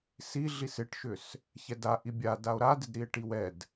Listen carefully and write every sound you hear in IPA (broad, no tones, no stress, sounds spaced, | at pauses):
s i ɮ i s ɪ ʈ ʃ ʏ s | ç ɛ d a ʔ i bʲ a d a o̯ ɾ a d ɪ d ɾ i e̯ ʈ i w ɛ d